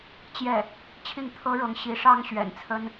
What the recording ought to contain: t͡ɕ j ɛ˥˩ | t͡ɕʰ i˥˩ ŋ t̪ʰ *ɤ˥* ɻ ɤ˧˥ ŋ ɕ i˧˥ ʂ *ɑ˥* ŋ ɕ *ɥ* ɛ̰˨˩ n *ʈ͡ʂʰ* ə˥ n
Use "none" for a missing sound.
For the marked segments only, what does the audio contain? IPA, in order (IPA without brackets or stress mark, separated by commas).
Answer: ɤ˥, ɑ˥, ɥ, t͡sʰ